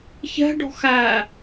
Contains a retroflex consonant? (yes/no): yes